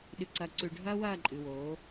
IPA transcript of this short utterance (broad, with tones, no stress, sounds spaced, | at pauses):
ɗ ɨ˨ ǀ ɐː˨ ǀ ʉ˨ ɖʱ ɐː˦ w ɐː˦˨ ǃʼ ɨ˨ w oː˨˦